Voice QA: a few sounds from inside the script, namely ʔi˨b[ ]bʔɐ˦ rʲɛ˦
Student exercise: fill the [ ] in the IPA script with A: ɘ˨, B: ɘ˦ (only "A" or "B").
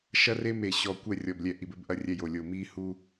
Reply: B